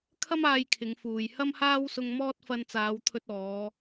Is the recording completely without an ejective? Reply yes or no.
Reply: yes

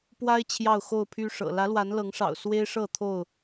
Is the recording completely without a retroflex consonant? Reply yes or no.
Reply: no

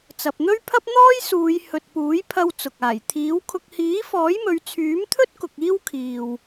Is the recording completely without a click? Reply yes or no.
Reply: yes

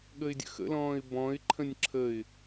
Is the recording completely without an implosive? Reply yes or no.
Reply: no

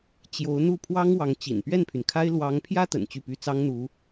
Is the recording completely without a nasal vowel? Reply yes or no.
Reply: yes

